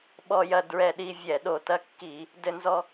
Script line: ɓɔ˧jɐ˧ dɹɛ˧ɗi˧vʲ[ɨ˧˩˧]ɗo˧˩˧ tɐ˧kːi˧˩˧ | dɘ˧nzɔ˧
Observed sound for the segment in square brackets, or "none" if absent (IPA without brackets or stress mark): ɛ˧˩˧